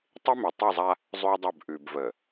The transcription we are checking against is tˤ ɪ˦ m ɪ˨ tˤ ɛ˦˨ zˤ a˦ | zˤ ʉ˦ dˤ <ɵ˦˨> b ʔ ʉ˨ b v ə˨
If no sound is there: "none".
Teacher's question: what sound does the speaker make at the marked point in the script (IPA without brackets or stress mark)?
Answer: ɵ˦˨